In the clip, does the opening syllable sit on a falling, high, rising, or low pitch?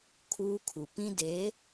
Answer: high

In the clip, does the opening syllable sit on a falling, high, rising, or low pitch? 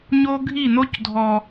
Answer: high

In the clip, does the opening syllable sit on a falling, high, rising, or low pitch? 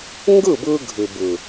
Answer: falling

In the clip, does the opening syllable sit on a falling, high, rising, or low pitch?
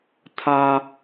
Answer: high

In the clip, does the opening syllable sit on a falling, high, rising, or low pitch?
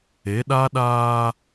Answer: rising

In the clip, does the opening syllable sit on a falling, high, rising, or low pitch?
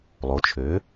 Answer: rising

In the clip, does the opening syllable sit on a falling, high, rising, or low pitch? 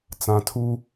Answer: low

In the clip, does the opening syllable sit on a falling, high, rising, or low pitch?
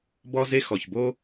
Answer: high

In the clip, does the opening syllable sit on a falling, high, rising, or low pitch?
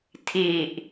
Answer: low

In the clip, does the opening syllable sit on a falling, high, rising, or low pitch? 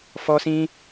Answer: high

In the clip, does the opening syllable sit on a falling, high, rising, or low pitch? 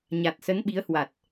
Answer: low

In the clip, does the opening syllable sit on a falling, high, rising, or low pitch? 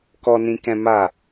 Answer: low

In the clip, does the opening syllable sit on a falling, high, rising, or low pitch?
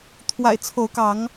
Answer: low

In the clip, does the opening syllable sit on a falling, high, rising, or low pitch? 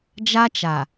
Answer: high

